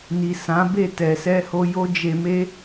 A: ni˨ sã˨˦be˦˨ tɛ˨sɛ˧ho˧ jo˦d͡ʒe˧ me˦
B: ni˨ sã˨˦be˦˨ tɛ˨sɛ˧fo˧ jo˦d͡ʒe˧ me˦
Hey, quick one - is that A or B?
A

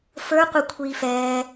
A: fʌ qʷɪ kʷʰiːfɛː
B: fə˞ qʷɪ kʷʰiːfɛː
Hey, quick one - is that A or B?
B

